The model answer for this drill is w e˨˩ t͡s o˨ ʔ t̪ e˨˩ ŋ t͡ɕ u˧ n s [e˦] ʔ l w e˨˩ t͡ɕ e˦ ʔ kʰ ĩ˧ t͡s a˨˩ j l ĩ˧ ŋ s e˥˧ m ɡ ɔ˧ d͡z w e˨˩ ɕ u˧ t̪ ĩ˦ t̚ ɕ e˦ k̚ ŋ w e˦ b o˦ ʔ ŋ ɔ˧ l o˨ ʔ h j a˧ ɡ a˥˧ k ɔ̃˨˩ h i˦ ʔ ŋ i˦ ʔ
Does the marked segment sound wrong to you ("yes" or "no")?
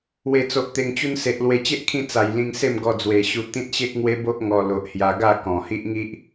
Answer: yes